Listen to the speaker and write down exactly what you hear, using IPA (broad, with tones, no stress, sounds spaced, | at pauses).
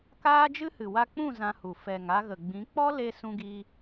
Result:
k aː˦ d͡ʒ ɨ˦ h ɨ˨ w a˧ k͡p ũ˦˨ z ã˧ h u˨ f ɛ˨ ŋ a˧ ɣ ə˨ ɡ͡b ĩ˨˦ k͡p ɔ˦ l e˧ s ũ˧ ɡ i˧